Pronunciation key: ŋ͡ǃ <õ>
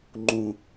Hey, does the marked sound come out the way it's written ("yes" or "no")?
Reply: no